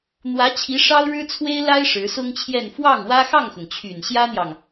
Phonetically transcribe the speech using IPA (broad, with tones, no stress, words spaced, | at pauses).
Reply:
n̪wä˧˥t͡ɕʰi˧˥ ʂɑ˥ʊ̯ɻɻ̩˥ t͡sʰwe˥ɪ̯la˥ɪ̯ ʂɻ̩˧˥sʊ˥ŋt͡ɕʰjɛ˥˧n fwɑ˥˩ŋ wä˥ xɑ˥˩ŋxʊ˩ŋt͡ɕʰy˨˩n ɕjä˥n̪jɑ˨ŋ